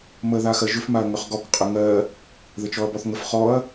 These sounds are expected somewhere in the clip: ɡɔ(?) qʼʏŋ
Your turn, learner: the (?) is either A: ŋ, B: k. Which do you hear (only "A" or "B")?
B